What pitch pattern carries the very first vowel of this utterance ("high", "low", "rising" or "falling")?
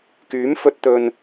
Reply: rising